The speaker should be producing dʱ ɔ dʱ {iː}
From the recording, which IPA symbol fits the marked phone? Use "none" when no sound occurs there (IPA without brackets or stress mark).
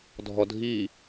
iː